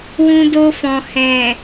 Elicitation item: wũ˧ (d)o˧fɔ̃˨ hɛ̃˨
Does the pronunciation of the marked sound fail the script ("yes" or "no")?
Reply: no